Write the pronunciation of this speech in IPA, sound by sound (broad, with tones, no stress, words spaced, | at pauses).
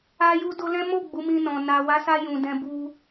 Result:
a˧ju˧do˧lɛ̃˦ mo˦˨ ɡ͡bu˨˦mĩ˧nɔ̃˨ na˨wa˨˦sa˧ jũ˨dɛ̃˧ bu˧